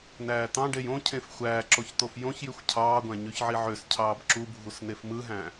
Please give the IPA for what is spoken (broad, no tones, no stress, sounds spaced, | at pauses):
n æː t̪ ɑ̃ ɖ e j õ cʰ ẽ f xʷ æː ǁ o ç t̪ o f j õ ç j y xʷ cʰ ɑː ɡʷ æ̃ ɲ y ç ʕ i ʕ ø s cʰ ɑː b ǁ u bʱ u s n e f m ɯ ɦ æ̃